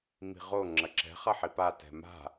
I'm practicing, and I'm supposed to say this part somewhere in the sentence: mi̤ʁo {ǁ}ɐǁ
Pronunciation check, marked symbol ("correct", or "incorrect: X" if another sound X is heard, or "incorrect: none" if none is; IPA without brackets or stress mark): incorrect: ŋ͡ǁ